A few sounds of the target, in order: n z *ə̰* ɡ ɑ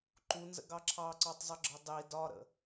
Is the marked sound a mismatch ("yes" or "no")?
no